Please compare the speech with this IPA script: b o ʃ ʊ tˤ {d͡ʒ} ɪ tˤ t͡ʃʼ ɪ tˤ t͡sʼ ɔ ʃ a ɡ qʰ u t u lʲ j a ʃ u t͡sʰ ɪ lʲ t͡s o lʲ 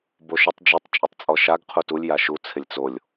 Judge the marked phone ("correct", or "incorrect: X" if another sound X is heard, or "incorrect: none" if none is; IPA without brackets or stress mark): correct